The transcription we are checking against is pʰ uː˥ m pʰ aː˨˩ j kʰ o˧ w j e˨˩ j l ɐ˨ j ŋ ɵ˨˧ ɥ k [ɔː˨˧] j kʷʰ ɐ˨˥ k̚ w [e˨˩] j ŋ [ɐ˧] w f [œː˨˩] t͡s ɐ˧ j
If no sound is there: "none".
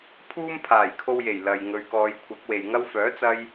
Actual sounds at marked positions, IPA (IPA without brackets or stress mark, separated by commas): ɔː˨˧, e˨, ɐ˥, œː˨˥